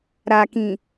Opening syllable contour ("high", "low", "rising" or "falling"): low